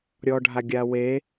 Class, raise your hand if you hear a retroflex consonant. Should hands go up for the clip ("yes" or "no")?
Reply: yes